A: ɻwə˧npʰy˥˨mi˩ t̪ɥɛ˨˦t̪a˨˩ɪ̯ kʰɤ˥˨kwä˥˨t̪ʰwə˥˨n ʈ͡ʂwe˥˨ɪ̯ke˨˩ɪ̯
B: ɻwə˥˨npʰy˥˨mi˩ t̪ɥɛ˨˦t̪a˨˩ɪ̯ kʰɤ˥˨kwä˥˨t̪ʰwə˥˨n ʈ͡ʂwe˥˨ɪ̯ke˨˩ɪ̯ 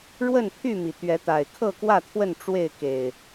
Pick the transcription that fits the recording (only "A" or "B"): B